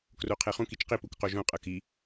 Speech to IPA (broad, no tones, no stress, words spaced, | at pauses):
kroqʰeχũk it͡ʃqi pukqoʒõ qʼɤki